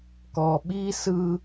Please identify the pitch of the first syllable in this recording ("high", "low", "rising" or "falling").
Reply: low